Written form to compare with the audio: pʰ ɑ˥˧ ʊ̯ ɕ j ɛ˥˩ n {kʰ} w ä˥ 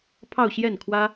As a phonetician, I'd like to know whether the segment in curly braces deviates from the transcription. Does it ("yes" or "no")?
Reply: no